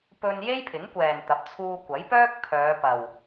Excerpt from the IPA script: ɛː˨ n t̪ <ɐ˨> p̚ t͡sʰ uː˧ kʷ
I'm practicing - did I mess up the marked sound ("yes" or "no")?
yes